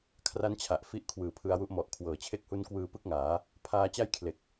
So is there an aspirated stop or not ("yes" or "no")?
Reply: yes